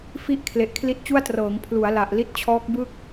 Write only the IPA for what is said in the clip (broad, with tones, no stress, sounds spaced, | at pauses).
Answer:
f i˦˥ ʔ kʰ l e˨˩ ʔ kʰ l i˦˥ t̚ t͡ɕ u˥˩ a̯ t r ɤː˩˦ ŋ pʰ l u˩˦ a̯ l a˨˩ ʔ l i˦˥ t̚ t͡ɕʰ ɔː˦˥ k̚ b ɯ˥˩ k̚